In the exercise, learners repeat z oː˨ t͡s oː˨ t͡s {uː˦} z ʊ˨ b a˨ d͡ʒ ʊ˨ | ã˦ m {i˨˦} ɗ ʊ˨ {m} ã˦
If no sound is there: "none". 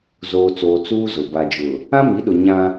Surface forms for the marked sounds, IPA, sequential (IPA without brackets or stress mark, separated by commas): uː˦, i˨˦, ɲ